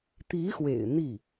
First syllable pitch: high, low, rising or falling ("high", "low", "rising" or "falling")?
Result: rising